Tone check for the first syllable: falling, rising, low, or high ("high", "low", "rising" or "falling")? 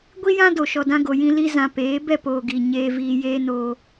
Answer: high